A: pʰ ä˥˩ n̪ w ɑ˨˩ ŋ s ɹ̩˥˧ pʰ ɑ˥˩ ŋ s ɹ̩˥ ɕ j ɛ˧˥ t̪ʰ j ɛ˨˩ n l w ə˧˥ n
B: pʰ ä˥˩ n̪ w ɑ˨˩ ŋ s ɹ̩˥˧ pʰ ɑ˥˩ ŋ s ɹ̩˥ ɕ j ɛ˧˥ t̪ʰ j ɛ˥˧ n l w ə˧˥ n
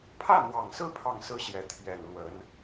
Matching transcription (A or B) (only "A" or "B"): A